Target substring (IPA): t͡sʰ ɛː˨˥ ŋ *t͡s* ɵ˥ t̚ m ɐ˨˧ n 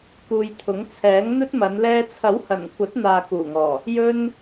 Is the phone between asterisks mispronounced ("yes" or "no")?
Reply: yes